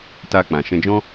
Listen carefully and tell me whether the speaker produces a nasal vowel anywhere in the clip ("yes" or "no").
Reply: yes